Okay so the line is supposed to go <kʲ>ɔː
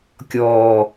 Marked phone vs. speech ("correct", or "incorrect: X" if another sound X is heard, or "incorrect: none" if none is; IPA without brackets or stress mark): correct